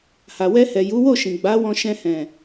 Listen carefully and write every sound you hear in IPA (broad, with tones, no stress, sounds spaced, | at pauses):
h a˨ w ɛ˧ h ɛ˨ j u˨˦ w o˦˨ ʃ ĩ˨ ɡ͡b a˨˦ w ɔ̃˧ ʃ ɛ̃˧ h ɛ̃˨